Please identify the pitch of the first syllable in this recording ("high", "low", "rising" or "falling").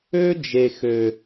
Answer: high